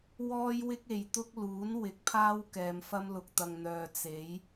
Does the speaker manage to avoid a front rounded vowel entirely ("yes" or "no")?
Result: no